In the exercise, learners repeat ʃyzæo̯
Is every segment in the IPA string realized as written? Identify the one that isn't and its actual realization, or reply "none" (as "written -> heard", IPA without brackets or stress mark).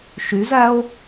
none